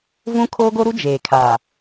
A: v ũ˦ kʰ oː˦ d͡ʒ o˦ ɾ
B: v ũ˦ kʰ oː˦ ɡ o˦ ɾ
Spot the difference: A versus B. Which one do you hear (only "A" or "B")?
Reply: B